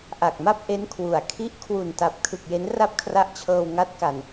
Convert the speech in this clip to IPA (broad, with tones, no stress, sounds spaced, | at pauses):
ʔ a˨˩ k̚ m a˥˩ p̚ ʔ e˦˥ n kʰ w u˨˩ a̯ kʰ i˥˩ ʔ kʰ w u˨˩ n t a˨˩ p̚ kʰ ɯ˨˩ k̚ j e˦˥ n r a˥˩ p̚ kʰ r a˦˥ ʔ t͡ɕʰ ɤː˧ w ŋ a˦˥ t̚ k a˨˩ n